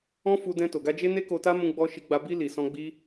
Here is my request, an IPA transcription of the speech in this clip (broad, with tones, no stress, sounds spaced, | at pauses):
ɔ̃˦ f u˧ d ɛ̃˧ t o˨ ɡ a˧ d͡ʒ e˦ n e˦ k o˧ t a˦ m ũ˧ ɡ͡b ɔ˧ ʃ i˧ ɡ͡b a˧ b i˧ l i˨ s ɔ̃˧ ɡ͡b i˦